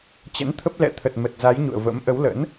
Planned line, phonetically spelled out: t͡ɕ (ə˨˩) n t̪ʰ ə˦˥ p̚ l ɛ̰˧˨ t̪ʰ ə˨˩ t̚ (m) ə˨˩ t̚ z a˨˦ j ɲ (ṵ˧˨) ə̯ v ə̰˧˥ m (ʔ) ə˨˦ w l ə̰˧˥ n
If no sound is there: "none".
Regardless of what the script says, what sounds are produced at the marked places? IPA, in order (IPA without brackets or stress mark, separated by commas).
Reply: ə̰˧˥, m, ṵ˧˨, ʔ